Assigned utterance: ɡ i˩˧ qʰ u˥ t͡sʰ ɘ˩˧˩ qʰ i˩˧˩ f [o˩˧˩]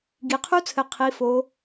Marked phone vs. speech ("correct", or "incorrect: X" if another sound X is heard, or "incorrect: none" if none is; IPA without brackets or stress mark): incorrect: o˩˧